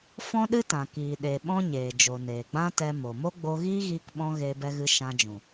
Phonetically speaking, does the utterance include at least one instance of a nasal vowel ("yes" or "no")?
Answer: yes